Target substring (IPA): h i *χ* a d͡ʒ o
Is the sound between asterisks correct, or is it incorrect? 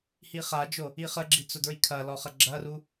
correct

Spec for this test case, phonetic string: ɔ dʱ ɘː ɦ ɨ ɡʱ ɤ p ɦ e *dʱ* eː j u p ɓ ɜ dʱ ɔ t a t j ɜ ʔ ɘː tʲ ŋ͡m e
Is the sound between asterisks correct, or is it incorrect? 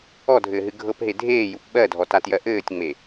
correct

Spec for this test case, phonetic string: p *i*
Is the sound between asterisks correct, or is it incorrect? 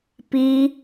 correct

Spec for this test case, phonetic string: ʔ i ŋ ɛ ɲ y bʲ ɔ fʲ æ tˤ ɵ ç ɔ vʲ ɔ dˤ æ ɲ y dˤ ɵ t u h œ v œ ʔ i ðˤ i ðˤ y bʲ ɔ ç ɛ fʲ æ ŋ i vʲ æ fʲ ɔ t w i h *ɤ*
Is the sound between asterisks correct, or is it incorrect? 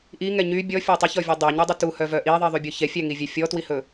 incorrect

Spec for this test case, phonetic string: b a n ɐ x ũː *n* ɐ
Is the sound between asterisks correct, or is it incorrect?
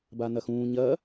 incorrect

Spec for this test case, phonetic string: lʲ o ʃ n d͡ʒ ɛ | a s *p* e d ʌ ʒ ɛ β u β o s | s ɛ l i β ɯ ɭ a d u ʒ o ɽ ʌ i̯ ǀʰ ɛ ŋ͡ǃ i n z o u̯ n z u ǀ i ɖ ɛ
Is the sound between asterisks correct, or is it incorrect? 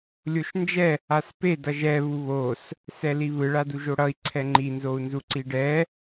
correct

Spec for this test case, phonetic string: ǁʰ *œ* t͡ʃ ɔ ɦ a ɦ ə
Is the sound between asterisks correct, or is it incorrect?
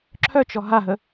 correct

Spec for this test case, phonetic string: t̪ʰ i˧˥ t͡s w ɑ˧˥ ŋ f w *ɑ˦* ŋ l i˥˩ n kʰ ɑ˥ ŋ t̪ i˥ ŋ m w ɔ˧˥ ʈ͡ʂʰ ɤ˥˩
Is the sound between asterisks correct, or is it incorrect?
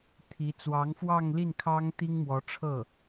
incorrect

